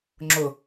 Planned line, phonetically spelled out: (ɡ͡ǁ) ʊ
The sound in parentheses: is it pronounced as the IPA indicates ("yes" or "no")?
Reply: no